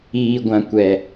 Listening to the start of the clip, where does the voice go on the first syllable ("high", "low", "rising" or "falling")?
high